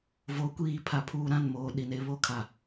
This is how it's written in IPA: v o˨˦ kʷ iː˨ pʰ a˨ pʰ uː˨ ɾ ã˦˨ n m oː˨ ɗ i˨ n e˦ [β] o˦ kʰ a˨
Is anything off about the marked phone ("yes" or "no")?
no